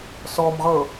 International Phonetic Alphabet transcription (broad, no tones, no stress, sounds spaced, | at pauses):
s ɔ m ʁ ɤ